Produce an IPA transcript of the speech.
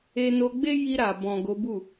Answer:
e˧no˧ɡ͡be˦ji˧ ɾa˨ bɔ̃˨ ɡo˨˦bu˦˨

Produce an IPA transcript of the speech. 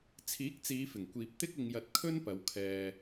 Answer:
t͡sʰiː˨˥k̚t͡siː˨˧fɪ˨˩ŋkʷiː˨p̚ t̪ɪ˥k̚ ɪ˧ŋjɐ˧t̚ kʰɵ˥npɐ˨˧wkʰɛː˧

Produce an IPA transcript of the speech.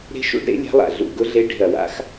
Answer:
ɾe̤˦˥ʃṵ˦˥ɖ ɾḛ˦˥lʲa̤˦˥lˠa̰˧˩ ɮṵ˧˩ɡʊ˦˥ɮe˦˥ ɖe̤˧˩ɐ̯wa̰˦˥x

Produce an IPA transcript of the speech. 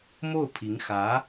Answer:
mo˥˩ʊ̯pʰi˧˥ŋ xä˧˥

